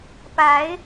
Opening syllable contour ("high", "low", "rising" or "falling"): rising